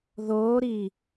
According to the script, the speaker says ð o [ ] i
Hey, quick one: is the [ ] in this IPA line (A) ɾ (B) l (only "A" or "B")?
A